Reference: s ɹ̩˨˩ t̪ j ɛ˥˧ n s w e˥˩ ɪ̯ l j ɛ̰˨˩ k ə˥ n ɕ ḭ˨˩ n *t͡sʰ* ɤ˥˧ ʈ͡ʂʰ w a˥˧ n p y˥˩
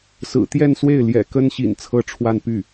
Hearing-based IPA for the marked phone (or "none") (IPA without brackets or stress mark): t͡sʰ